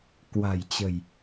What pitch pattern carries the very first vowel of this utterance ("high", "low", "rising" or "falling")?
low